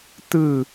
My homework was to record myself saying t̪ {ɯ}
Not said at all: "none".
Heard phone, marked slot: ɯ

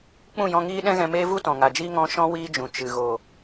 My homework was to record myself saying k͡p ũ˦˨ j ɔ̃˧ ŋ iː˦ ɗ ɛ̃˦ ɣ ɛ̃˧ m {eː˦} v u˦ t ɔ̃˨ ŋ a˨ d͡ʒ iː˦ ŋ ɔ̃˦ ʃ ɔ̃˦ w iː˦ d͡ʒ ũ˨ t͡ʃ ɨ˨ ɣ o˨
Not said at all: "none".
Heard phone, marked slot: eː˦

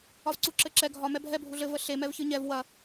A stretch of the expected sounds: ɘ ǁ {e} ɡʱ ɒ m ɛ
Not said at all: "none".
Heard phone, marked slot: ɛ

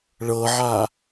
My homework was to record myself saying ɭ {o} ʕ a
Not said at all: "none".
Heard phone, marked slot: ɤ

